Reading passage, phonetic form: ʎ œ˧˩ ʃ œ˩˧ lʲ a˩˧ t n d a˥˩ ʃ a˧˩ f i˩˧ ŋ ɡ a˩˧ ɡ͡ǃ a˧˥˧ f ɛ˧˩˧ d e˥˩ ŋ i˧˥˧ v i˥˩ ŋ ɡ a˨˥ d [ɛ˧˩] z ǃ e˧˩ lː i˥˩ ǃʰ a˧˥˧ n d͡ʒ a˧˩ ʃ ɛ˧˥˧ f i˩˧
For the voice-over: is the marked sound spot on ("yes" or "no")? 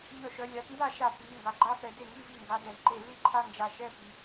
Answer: no